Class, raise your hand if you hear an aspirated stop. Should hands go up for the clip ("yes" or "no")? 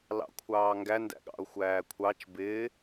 yes